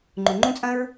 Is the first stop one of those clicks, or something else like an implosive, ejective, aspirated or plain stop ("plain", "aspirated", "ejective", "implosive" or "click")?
click